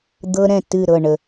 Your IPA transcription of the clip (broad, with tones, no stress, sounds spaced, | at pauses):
d̪ ɤ˦ ɾ ɛ̃˦˨ t ɨ˦˨ ɾ ɤ˦˨ ɳ ə˨